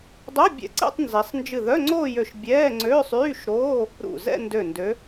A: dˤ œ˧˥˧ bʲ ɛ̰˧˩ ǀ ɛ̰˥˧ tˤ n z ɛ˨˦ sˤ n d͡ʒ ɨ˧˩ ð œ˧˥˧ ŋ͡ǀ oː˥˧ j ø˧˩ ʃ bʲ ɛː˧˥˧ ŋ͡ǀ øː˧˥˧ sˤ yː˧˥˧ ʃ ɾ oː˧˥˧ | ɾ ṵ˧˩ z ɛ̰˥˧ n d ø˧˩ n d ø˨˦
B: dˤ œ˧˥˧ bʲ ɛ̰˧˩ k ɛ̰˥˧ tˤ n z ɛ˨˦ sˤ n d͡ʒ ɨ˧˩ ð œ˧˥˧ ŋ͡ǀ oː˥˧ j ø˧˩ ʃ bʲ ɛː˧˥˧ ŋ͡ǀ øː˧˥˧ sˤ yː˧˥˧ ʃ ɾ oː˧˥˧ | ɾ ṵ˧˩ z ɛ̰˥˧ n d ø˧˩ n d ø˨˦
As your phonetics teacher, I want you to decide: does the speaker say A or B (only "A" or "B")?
A